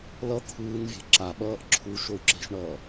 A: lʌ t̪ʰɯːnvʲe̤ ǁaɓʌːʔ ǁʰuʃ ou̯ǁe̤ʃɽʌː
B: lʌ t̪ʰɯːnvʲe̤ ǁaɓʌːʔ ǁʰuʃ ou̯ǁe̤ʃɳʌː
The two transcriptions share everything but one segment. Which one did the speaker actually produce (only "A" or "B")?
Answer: B